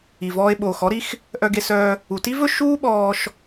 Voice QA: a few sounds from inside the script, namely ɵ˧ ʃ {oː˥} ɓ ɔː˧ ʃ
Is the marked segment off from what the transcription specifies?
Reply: yes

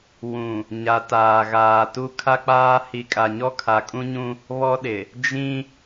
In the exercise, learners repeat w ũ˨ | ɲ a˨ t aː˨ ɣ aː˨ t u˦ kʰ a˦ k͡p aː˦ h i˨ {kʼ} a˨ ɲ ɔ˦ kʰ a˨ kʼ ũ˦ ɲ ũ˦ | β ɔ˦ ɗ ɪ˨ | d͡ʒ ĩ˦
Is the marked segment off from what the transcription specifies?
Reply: no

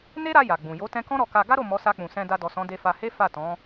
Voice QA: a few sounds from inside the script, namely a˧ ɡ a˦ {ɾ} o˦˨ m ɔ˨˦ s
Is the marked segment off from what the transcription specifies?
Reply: no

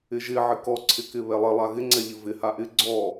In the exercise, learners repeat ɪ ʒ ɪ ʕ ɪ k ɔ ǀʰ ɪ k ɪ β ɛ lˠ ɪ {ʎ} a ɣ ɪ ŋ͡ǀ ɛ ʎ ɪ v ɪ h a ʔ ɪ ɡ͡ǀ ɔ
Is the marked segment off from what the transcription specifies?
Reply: yes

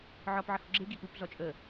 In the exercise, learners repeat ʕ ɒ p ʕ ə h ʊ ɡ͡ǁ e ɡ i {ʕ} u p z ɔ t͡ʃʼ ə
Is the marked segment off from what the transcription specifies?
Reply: yes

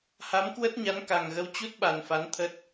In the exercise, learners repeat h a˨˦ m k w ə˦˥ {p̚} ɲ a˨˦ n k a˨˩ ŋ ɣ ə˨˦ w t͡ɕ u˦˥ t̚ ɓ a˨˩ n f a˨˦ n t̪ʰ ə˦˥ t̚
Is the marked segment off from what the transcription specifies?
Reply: yes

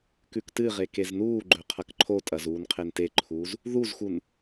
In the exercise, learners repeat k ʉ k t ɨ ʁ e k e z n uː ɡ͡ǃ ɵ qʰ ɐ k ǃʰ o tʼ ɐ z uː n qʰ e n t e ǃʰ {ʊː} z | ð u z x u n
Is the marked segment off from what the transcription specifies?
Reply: yes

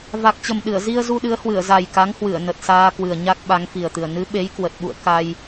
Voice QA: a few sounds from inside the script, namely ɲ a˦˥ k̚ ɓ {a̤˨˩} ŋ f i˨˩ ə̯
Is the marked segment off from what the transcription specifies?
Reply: yes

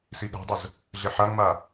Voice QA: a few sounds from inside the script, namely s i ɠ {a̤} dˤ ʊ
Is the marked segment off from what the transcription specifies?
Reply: no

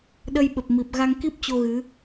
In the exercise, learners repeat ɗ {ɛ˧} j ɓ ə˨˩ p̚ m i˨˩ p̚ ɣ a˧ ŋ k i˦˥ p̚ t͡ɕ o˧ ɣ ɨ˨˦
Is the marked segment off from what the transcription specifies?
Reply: yes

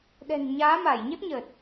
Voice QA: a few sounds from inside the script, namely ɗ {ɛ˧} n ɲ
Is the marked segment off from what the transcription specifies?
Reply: yes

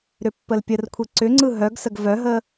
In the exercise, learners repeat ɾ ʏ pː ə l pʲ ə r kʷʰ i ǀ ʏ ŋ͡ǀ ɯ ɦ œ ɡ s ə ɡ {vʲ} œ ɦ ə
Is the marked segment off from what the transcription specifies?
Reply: yes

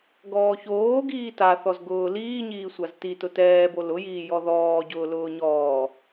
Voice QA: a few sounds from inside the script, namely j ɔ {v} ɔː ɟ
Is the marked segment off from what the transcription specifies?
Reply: yes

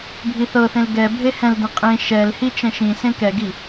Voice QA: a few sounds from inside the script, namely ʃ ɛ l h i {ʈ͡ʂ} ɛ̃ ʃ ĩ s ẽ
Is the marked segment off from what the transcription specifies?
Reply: yes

